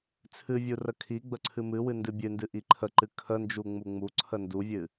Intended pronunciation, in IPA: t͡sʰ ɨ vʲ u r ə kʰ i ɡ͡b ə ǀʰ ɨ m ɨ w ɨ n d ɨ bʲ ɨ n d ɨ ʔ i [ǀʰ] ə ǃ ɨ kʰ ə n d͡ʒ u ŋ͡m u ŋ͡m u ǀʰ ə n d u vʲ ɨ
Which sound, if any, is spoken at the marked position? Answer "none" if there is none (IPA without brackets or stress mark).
ǃʰ